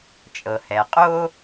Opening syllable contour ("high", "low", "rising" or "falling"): low